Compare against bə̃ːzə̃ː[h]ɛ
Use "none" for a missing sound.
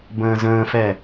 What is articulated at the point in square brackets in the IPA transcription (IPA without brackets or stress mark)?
f